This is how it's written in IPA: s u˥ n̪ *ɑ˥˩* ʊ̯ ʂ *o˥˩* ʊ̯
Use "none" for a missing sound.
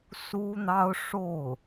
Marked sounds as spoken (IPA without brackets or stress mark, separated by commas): ɑ˥, o˥˩